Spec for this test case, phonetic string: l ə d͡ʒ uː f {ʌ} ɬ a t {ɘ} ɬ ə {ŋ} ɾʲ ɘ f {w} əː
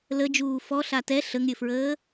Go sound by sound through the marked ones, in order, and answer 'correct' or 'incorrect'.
incorrect: ɔ, incorrect: ɛ, correct, incorrect: ɹ

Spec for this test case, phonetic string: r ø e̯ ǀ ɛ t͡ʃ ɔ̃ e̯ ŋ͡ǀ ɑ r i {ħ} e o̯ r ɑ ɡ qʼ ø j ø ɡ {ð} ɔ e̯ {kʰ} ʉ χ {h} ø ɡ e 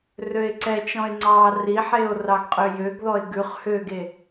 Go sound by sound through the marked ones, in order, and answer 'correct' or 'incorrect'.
correct, correct, incorrect: ɡ, correct

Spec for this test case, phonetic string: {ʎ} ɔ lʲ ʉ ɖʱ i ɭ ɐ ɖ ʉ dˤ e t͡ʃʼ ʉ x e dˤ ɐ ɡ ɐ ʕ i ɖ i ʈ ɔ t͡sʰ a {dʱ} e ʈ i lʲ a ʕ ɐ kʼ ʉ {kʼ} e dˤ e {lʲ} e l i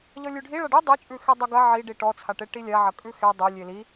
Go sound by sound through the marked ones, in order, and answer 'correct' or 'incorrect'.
correct, incorrect: ʈ, incorrect: x, correct

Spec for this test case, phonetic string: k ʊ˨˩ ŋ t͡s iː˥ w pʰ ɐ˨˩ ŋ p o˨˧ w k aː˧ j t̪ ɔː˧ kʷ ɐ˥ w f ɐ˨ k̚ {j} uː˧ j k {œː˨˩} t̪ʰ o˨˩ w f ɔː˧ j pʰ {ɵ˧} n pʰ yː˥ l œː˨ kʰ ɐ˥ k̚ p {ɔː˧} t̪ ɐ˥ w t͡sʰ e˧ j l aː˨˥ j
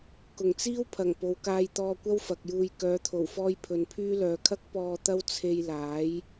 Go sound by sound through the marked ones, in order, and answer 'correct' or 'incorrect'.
correct, incorrect: œː˨˧, incorrect: ɵ˨, correct

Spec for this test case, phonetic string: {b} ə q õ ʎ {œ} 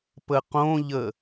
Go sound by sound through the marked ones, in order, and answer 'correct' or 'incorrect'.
incorrect: p, incorrect: ə

